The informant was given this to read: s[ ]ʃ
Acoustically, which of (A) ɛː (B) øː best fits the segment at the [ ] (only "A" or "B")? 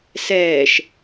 A